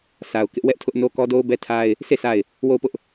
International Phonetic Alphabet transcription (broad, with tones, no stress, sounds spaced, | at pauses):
sʰ a˨ ʊ̯ k ɪ˦ ʔ w ɛ˦ ʔ tʰ ʊ˦ ʔ n o˦ k ɔ˦ d o˦ ʊ̯ b ɛ˦ tʰ a˦ ɪ̯ | s e˦˨ sʰ a˦˨ ɪ̯ | w o˦˨ ʊ̯ p ʊ˦ ʔ